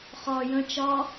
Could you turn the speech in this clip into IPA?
χɒ jə̃ t͡ʃɒ

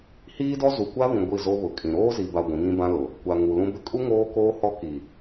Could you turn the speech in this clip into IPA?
hiː˦dɔ˦ zu˨kʷa˦βĩ˨ ɡʷi˦˨zo˦ βʊ˨kʼĩ˨ ɾoː˦zi˨ba˨ ɡʷĩ˨˦ŋĩ˦bã˦lʊ˨ | kʷa˨ ŋu˨lũ˦bɪ˦ kʼu˦ ŋoː˦koː˦hɔ˦ ki˨

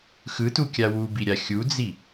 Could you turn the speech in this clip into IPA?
xɯtukʲa wubiɾʲa xʲud͡zi

